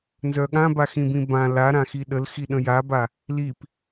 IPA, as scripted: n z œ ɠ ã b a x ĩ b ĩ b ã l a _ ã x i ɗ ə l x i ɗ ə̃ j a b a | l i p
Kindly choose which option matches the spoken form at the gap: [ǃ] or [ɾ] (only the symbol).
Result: ɾ